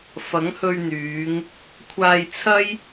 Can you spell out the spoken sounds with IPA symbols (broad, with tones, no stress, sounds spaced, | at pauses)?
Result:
f ɐ˨˥ ŋ h ɵ˧ ɥ n̪ yː˨˧ ŋ | kʷʰ aː˧ j t͡sʰ ɐ˥ j